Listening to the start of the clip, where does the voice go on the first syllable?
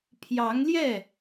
rising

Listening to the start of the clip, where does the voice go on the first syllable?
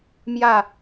falling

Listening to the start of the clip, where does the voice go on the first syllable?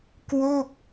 falling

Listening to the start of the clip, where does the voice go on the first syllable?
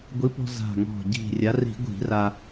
rising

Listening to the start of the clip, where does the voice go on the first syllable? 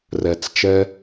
low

